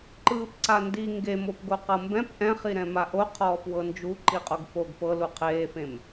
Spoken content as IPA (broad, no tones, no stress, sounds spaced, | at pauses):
ǃ ɯː p ǀ a n d i ŋ ɡ e m o p ɡ o q ɤ m b ɛ̃ p ʔ ɛ̃ χ i ɾ ɛ̃ m a ʔ o qʰ ɔː p w ɤ n d͡ʒ u ǃ i qʼ o ɡ f o ɡ p ɤ l u qʰ eː f ẽ m